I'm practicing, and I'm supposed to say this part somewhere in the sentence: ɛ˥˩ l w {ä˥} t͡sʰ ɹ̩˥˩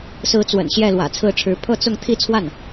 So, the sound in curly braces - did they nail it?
no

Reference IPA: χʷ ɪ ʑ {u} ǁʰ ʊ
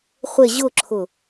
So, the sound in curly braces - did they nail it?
no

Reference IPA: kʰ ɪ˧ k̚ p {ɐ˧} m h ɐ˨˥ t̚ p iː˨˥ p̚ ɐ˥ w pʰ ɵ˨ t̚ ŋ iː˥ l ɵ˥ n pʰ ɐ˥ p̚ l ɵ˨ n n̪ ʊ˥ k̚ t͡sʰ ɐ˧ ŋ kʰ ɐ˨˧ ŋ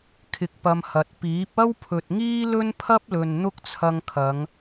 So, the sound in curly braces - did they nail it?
yes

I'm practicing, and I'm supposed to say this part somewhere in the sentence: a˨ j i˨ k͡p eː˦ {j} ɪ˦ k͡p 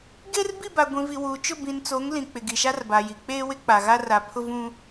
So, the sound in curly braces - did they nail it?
no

